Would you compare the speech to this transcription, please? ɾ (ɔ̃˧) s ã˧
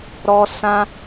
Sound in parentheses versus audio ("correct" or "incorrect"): incorrect